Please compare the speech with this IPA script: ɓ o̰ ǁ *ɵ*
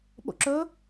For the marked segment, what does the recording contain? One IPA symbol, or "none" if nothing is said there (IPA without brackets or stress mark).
ɵ